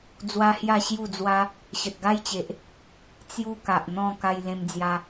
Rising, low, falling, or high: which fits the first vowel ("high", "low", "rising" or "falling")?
high